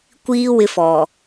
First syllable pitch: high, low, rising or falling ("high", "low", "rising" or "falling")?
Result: high